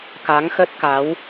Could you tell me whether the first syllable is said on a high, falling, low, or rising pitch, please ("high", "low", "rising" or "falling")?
rising